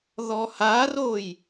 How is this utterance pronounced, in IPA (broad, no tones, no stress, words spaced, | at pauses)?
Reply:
ðɔharoj